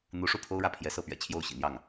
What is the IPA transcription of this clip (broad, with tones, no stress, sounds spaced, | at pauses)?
n̪ u˧˥ ʂ u˥˩ pʰ o˥ ʊ̯ ɻ ä˥˩ pʰ j ɛ˧˥ s ɤ˥˩ p ɥ ɛ̰˨˩ t͡ɕʰ j o˥˩ ʊ̯ ɕ ḭ˨˩ n̪ j ɑ˥˩ ŋ